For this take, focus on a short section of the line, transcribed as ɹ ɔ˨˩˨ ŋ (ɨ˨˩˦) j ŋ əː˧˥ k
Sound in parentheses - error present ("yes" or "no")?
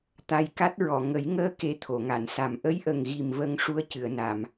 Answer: yes